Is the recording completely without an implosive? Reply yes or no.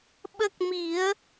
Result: no